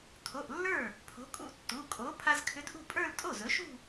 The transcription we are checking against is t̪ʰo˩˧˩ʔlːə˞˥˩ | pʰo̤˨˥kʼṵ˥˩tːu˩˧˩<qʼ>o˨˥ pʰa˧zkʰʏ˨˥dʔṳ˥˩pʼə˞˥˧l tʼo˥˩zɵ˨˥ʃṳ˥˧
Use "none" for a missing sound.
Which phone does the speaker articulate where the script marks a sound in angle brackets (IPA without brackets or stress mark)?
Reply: kʼ